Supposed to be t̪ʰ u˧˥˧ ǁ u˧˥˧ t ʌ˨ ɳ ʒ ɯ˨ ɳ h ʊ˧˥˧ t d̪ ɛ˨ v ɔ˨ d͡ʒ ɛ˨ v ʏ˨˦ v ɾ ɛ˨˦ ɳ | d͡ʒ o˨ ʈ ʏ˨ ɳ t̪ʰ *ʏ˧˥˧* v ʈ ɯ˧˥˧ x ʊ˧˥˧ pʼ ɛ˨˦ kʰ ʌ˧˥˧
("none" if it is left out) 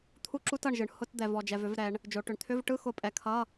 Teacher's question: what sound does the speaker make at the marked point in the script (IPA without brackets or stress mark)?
ʏ˧˥˧